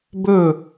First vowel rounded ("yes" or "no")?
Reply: yes